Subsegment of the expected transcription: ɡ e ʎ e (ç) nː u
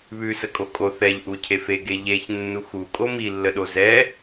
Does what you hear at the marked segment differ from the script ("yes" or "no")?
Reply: no